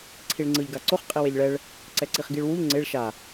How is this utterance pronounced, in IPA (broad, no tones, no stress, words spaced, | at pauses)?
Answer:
ǀʰiɭŋ͡ǀɯʎ ɡaǀoχ qʼiweʎɭɛɭ | ǀɛǀiχɡiɭwuʎ ŋ͡ǀeɭ ʃa